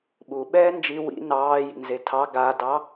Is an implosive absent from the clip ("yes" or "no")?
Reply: no